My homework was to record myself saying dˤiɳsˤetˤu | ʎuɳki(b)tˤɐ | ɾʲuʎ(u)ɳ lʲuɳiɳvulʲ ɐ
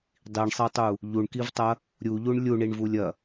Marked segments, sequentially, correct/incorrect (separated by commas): incorrect, correct